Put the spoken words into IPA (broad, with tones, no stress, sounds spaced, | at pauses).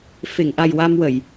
f e˨˩˨ ŋ ʔ a˨˩ j w a˧ m w ə˨˩˨ j